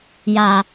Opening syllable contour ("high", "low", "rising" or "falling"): low